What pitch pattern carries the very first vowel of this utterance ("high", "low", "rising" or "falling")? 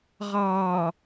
low